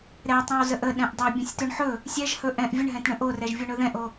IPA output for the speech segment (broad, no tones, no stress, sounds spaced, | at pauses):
ɾ ɛ tˤ ɛ̃ w z ə ʔ ə ɗ ɛ̃ ʔ dˤ o bʲ ə̃ sʲ t ɵ ɳ ħ ɵ | sʲ ɛ ʒ h ɵ ʔ ɛ̃ ʔ vʲ ə ɳ ɦ ɛ̃ t ɳ ə̃ ʔ o r ɛ ʒ vʲ o ɳ ɵ ð ɛ̃ ʔ o